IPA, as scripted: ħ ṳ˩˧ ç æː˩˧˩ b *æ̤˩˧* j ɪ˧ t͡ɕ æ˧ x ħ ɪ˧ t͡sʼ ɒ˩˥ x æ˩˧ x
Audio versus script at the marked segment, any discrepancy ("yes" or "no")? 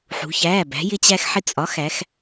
no